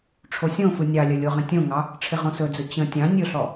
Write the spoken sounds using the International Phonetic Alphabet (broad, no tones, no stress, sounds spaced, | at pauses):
ʈ͡ʂʰ o sʲ õ f ɯ nʲ ɑ lʲ ə lʲ o ʁ ə̃ tʲ õ ŋ ɑ | ʈ͡ʂʰ ɪ ʁ õ s ɵ d͡z ɵ t͡ɕ ə̃ tʲ ɑ̃ nʲ ɵ ɬ ɔ